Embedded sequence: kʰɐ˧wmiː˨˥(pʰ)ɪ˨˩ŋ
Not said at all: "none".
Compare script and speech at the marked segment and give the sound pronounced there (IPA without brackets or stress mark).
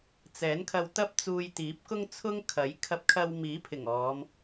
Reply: pʰ